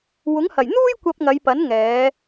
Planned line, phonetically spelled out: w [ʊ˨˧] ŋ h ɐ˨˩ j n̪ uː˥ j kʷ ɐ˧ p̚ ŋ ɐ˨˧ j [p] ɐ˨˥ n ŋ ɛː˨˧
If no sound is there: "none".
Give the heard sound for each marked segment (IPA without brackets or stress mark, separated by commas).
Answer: ʊ˨˥, p